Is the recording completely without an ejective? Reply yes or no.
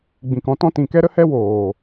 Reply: yes